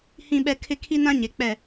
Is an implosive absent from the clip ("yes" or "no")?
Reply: no